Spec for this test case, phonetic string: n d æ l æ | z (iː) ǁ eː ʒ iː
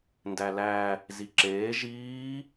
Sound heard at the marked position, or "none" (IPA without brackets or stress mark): i